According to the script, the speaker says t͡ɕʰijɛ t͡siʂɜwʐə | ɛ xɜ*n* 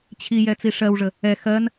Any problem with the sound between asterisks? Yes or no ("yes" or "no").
no